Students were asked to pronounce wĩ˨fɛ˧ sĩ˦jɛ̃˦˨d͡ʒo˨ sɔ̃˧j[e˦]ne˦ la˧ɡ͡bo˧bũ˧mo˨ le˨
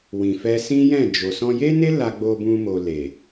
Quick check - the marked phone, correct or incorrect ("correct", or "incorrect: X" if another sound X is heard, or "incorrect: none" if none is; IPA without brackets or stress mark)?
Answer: correct